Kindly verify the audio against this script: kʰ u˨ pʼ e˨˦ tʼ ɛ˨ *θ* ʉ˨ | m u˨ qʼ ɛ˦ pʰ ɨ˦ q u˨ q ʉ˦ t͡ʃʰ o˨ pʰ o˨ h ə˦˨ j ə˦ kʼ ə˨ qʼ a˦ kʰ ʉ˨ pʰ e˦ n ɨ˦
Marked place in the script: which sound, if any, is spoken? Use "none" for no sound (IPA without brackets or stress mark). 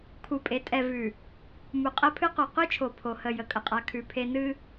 v